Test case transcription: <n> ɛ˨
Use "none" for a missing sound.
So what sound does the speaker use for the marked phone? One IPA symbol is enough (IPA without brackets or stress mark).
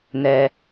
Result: n